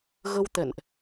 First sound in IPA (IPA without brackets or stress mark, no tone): ɣ